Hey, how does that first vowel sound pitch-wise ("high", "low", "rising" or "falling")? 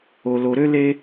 low